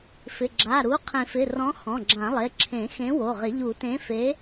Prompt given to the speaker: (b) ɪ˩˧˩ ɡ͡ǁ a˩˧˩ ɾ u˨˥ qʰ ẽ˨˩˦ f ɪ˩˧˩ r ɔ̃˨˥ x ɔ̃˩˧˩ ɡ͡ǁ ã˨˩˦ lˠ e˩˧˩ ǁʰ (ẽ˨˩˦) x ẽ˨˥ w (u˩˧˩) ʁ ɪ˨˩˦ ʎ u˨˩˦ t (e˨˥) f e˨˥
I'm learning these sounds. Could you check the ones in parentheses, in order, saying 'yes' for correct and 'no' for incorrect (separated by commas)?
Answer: no, yes, no, no